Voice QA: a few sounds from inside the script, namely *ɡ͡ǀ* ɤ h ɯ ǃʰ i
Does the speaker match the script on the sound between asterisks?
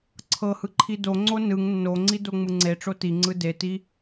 no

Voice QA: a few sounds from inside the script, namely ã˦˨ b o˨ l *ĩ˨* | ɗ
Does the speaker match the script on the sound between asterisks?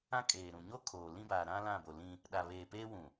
no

